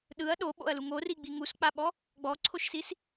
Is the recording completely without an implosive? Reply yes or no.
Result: no